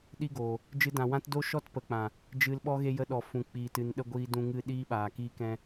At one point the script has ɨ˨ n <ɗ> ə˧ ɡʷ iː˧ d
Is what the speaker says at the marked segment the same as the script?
yes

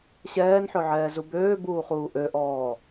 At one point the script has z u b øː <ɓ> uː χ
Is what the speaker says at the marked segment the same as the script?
no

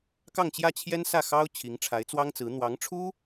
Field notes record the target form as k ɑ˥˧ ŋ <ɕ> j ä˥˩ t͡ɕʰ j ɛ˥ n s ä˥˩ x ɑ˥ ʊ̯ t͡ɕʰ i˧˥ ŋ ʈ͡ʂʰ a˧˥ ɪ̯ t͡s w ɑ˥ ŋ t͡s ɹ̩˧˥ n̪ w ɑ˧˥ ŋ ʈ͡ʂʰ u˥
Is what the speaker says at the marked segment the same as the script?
no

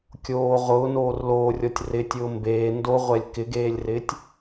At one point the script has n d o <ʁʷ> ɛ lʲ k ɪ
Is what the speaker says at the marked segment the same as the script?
yes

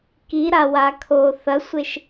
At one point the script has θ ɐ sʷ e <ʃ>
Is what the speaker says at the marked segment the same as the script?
yes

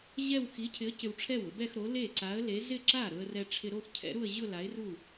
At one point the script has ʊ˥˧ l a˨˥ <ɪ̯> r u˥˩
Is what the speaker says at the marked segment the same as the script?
yes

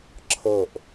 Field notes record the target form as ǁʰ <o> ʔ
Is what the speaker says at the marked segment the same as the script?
no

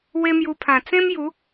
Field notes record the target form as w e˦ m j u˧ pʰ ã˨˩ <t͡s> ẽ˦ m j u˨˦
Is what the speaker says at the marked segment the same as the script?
yes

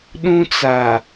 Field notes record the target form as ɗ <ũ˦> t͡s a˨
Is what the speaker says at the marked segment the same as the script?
yes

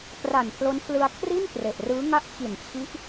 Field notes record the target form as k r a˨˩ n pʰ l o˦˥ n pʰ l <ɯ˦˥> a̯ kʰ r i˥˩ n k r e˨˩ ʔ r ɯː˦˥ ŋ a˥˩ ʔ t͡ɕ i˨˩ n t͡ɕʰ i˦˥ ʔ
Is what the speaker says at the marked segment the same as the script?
no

